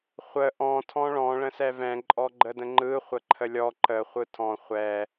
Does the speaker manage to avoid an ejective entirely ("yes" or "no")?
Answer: no